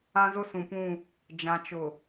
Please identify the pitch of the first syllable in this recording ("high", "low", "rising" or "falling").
high